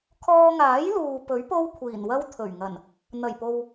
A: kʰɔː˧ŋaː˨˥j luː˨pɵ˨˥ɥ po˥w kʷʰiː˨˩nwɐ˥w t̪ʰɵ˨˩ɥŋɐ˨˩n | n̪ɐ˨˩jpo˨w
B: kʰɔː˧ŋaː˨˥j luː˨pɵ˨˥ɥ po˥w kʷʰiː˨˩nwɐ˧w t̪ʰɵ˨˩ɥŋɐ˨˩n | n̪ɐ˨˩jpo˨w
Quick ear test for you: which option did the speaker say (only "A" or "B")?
A